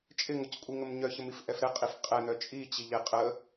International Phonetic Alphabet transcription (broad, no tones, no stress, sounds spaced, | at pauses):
t͡ʃʼ ɪ ŋ ʊ c kʷʼ i ŋ ə m ɲ œ ç ə m i f ʔ ɛ f ɾ ɛ qʼ i f qʼ ɛ n̪ œ t͡ʃʼ i t͡ɕ i ʎ e qʼ ə